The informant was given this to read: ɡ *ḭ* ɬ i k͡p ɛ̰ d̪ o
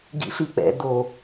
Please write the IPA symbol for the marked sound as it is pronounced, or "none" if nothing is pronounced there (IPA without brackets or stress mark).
ḭ